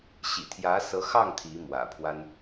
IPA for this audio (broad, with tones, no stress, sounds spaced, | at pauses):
ɕ ḭ˨˩ t̪ʰ j ä˧˥ s ɤ˧˥ x ɑ˥˩ ŋ t̪ʰ i˧˥ m w ä̰˨˩ pʰ w a˥ n